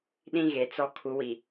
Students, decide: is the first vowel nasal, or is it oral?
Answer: nasal